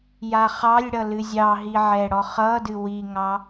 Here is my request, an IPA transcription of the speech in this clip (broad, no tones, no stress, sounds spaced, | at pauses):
j a χ ɑ lʲ ɽ ʌ l ɨ zʲ ɑ ɦ i ʕ ɛ ɽ ɔ χ ʌ d ɨ w i ŋ ɑ